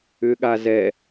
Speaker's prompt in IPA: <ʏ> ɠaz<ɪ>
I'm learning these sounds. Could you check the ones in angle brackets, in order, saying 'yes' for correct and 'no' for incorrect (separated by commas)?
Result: yes, no